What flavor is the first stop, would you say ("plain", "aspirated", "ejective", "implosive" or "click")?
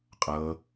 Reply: ejective